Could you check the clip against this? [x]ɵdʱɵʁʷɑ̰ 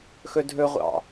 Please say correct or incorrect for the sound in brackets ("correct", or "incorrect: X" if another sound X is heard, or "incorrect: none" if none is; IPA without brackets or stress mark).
correct